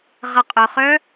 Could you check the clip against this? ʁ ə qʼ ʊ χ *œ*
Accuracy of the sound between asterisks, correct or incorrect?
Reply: correct